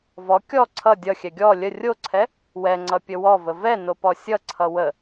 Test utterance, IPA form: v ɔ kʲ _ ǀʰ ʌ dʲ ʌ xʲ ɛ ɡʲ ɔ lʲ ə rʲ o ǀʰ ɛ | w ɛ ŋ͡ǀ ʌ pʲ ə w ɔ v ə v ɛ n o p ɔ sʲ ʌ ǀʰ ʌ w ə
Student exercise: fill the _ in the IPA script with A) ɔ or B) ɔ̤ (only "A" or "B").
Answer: A